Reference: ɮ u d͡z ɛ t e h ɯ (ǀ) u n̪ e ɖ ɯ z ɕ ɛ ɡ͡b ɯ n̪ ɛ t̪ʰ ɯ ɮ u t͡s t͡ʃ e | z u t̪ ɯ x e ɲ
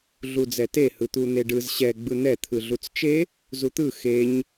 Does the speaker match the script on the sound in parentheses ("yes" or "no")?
no